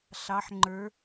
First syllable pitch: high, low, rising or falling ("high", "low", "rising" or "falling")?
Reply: rising